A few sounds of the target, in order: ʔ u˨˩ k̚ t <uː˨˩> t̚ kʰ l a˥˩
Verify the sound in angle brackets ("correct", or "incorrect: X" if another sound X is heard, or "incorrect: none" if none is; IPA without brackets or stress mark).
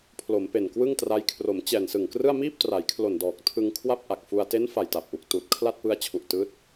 correct